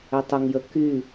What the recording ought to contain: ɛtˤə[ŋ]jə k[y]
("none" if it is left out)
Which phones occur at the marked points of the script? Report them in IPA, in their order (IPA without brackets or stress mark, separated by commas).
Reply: ŋ, y